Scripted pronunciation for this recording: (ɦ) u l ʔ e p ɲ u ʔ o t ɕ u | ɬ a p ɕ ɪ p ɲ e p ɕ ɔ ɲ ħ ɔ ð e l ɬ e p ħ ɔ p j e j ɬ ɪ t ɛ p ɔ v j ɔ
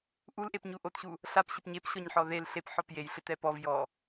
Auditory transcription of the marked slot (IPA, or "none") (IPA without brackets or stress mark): ʔ